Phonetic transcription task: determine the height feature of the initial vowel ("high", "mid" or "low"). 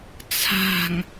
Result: low